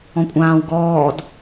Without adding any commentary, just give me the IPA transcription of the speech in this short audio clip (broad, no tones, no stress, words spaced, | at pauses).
ɔ̃kʷʼãːw ɡɔːd